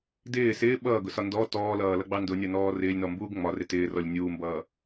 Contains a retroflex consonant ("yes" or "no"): no